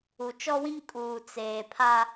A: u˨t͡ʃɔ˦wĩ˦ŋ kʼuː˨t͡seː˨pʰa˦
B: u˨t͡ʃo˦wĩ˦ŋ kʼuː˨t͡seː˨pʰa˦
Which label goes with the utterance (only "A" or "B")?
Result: A